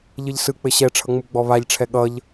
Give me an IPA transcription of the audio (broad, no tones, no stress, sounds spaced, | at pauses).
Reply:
ʎ ɘ ʎ s ɯ k͡p ɘ ɕ ɛ ʈ͡ʂʰ ʌ ŋ͡m u ɡ͡b ɔ β a ʎ ʈ͡ʂʰ ɛ ɠ ʌ ʎ